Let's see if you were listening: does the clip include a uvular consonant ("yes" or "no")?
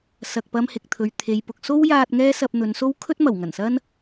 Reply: no